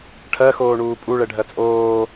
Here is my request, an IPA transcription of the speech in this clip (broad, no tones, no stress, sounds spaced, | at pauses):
ʈʰ ɜ x oː ɳ uː pʼ u ɭ ɛ ɖʱ ɜ t͡sʼ oː